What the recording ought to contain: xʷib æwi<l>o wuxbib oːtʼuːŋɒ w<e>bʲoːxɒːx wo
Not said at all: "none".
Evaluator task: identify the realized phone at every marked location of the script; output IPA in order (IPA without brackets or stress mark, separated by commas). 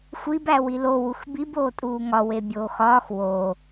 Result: l, e